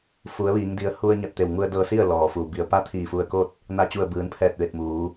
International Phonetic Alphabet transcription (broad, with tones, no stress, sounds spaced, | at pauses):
f u˩˧ ə̯ ʋ iː˩˧ ŋ d i˩˧ ə̯ h u˧ ə̯ ɲ a˧˩ t̚ t̪ e˧˩ w ŋ u˧ ə̯ d ɤː˧ s i˥˨ ə̯ l ɔː˩ f uː˩ b i˧˩ ə̯ p a˧˥ t̪ʰ iː˧˩ f u˧ ə̯ k o˥˨ t̚ | n a˥˨ t͡ɕ u˧˩ ə̯ b ɯː˩˧ n pʰ ɛː˧˩ t̚ ʋ e˧˩ t̚ m uː˩˧